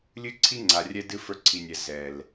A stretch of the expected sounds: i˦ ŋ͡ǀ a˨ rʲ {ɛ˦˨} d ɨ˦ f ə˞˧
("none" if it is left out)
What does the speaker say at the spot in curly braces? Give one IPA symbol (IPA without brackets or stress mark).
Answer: ɛ˧